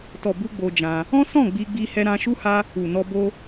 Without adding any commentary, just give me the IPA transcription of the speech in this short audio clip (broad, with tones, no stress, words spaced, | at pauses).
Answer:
tɔ˨bu˧ ɡ͡bo˧d͡ʒã˧ | ɔ̃˦sɔ̃˦˨ ɡ͡bi˧ɡ͡bi˧ hɛ˧ɾã˧ʃu˦ha˦ | u˨nɔ˧ bo˧